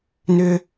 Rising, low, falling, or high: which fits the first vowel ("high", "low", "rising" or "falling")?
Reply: high